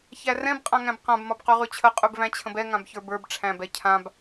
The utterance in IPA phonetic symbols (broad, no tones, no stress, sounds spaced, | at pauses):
ç æ r ɛ̃ b qʼ ã ŋ æ̃ b q ã b m ɒ b q ʉ ʁ ʉ t͡ɕʰ ə qʼ ʉ b v æ̃ t͡ɕʰ ə̃ b ɛ ŋ ã b ç ə˞ b ə˞ b ʈ͡ʂʰ æ̃ b ɛ cʰ ã b